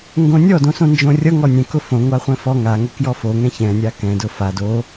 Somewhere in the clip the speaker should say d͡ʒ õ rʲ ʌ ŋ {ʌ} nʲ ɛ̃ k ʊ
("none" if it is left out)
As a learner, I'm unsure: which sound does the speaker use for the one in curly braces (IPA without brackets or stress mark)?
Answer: ɔ